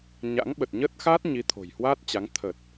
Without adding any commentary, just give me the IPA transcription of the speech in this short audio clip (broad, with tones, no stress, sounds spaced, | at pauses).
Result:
ɲ a̰˧˥ ŋ ɓ ə˨˩ t̚ ɲ ə˦˥ t̚ x aː˦˥ t̚ ɲ i˨˦ t̪ʰ o̤˨˩ j h w aː˦˥ t̚ t͡ɕ a˨˦ ŋ t̪ʰ ə˨˩ t̚